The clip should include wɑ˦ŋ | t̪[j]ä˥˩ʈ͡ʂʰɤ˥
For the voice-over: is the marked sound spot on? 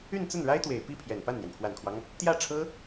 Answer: yes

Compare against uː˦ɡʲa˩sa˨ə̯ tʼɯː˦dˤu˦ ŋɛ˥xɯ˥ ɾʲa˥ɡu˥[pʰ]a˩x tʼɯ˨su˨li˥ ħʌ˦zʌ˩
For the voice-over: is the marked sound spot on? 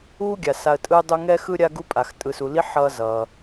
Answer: no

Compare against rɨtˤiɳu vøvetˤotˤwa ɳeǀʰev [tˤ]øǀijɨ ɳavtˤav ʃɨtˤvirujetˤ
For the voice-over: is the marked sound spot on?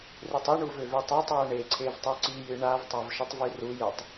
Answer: yes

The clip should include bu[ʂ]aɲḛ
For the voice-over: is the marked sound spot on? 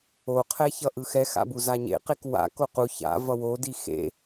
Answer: no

